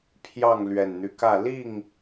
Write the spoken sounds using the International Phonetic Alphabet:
pʰ j ɑ˥˨ ŋ l ɥ ɛ˨˩ n n̪ y˦ k ä˥˨ l i˥˨ ŋ

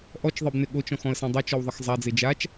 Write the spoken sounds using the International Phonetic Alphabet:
ʔ ɔ t͡ʃ ðˤ e b n ɪ ɠ o t͡ʃ ɔ̃ x ɔ̃ ə̯ s ẽ dˤ ɐ t͡ʃ ɔ w ðˤ ɐ x zˤ a d͡z e d͡ʒ a t͡ʃ

